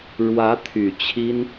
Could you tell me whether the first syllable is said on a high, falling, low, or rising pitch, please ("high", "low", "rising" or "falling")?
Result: rising